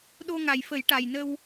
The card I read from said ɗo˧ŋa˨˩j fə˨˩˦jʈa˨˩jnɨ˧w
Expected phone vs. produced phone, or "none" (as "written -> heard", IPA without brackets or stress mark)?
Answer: ɨ˧ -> ə˧